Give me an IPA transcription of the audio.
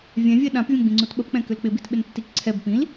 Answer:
vʲ ɛ̃ vʲ ɛ ɗ ã p vʲ ɐ̃ ɡ͡b ĩ ŋ͡ǀ u t ɓ ə p k͡p ɛ̃ k ʏ l k͡p ɪ b i t ɓ ɪ n tː i k ǀʰ ɛ b p ĩ l

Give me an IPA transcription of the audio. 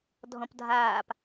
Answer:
dʱ ɔ̃ p dʱ aː p

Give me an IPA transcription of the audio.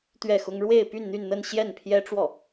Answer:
t̪ ɥ ɛ˥˩ x ʊ˥ ŋ ɻ w e˥˧ ɪ̯ p y˥˧ n n̪ y˥˧ n n̪ ə˥˧ n ɕ j ɛ˥˩ n pʰ j ɛ˥ ʈ͡ʂ w ɔ˥˩

